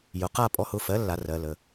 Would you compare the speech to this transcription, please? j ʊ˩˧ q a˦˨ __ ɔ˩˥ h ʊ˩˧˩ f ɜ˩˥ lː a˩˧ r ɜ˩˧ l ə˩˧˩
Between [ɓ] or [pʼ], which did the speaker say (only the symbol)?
pʼ